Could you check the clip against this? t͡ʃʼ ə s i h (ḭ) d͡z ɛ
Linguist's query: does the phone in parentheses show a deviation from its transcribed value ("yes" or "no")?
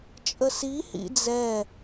no